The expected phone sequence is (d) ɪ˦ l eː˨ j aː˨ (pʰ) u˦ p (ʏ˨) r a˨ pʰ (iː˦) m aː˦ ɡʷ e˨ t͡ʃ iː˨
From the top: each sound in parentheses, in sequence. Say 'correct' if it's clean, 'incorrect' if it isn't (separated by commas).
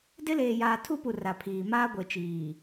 correct, incorrect, incorrect, incorrect